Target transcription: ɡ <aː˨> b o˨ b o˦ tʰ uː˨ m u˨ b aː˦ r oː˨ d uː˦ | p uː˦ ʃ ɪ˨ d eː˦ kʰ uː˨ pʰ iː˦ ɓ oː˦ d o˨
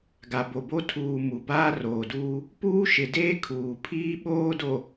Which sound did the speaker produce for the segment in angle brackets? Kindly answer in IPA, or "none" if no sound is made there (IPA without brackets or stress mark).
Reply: a˨